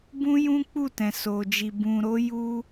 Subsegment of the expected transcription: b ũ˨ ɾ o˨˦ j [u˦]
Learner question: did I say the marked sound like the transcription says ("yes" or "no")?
yes